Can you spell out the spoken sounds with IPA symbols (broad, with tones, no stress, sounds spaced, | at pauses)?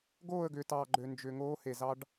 ɡ oː˦˨ ə̯ ɡ ʏː˨ t ɑː˨ ɡ͡ǃ ø˨ n d͡ʒ ʏ˨ ŋ oː˦ h e˨ z ɑ˦ ɖ